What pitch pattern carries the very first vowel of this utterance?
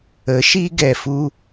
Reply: rising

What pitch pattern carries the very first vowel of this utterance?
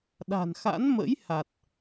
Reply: low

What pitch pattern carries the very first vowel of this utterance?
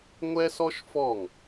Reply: high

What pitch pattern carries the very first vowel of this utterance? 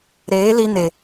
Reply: rising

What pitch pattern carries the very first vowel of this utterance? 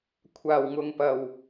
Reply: low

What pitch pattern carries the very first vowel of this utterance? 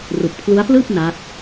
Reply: low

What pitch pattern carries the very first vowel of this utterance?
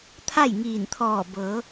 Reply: falling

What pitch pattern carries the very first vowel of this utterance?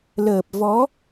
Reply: low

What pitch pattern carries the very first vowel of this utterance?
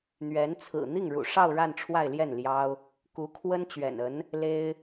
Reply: rising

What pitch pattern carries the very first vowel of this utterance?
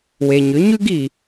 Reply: low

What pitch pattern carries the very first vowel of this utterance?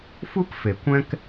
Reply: high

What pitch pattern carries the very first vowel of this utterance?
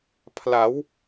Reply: rising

